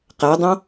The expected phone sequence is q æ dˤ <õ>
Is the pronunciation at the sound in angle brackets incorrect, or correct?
correct